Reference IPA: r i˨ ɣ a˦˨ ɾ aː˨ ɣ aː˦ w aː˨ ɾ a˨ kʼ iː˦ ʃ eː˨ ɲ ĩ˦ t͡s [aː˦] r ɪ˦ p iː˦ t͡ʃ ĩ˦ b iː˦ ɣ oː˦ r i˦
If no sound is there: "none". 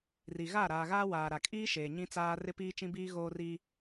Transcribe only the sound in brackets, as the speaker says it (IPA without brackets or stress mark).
aː˦